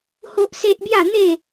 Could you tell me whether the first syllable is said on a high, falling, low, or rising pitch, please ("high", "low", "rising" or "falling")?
high